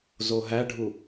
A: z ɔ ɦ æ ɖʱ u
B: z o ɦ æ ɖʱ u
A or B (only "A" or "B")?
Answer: B